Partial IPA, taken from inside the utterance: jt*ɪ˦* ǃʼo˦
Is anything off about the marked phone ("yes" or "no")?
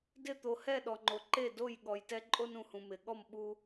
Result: yes